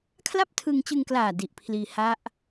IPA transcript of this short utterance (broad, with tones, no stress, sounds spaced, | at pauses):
kʰ l a˥˩ p̚ tʰ ɯ˧ ŋ t͡ɕ ɯ˧ ŋ k l aː˨˩ d i˨˩ ʔ pʰ l iː˧ h a˦˥ ʔ